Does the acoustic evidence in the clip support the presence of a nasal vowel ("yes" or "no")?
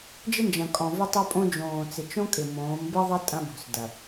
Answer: yes